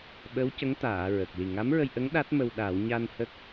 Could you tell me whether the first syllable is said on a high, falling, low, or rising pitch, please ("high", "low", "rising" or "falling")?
rising